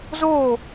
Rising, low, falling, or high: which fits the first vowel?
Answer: falling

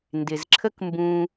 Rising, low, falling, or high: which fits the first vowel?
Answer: low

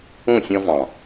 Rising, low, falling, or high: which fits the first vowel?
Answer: falling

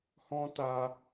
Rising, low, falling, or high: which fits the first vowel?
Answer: high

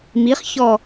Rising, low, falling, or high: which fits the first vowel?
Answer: rising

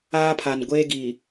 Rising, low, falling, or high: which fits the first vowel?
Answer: high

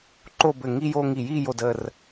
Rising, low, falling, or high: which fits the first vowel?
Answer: falling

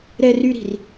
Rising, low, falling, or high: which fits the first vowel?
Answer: high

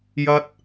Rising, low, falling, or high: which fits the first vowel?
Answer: high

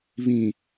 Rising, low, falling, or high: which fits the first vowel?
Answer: low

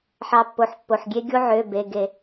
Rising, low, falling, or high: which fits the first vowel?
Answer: rising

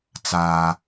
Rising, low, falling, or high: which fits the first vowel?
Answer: high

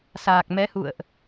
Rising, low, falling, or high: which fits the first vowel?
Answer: low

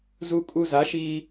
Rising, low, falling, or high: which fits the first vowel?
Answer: high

